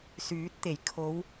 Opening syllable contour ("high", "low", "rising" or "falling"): rising